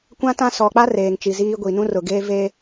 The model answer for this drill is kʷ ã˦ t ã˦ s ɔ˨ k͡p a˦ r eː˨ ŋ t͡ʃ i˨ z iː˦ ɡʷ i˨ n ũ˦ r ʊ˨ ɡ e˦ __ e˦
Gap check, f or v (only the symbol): v